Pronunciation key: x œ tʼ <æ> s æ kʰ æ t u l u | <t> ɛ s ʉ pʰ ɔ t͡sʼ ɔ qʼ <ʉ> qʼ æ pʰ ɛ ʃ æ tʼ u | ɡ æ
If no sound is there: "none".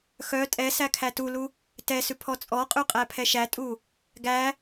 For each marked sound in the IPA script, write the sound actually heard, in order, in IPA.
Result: ɛ, t, ʉ

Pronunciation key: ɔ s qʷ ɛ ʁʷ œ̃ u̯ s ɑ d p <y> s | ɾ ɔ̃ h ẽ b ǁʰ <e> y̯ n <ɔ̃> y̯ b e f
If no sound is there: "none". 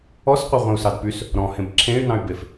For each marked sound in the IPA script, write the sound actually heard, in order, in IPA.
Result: y, ẽ, ɑ̃

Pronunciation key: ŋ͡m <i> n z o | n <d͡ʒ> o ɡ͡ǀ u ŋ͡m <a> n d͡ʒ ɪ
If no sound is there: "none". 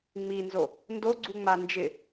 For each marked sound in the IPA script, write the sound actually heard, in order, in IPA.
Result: i, d, a

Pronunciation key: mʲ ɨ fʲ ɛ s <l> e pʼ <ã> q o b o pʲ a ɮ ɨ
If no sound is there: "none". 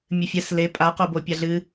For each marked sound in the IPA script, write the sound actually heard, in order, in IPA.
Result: l, a

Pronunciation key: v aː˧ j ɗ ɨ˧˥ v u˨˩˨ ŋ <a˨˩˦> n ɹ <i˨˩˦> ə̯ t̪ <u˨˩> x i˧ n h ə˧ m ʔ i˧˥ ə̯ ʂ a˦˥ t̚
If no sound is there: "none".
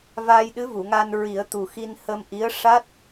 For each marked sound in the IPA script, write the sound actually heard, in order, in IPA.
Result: a˧, i˨˩˦, u˨˩

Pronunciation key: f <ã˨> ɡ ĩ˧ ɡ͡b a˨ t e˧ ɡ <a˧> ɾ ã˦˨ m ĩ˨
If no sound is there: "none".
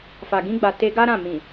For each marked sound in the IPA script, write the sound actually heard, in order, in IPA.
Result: a˨, a˦

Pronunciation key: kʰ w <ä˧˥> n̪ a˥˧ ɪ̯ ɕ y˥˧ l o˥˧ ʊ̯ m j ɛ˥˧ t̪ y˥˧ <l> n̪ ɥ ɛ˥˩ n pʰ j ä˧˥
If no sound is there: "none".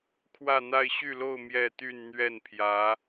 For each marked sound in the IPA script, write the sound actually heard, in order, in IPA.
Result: ä˥˧, n

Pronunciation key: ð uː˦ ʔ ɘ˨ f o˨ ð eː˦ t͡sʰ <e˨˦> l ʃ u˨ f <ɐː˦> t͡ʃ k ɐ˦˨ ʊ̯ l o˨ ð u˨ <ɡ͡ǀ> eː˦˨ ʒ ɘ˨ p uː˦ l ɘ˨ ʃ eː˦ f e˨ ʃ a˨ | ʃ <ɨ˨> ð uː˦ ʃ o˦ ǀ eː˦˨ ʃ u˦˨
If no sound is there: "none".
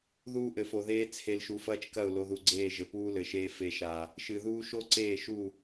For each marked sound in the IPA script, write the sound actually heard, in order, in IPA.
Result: e˨, ɐː˦, ɡ͡ǀ, ɨ˨

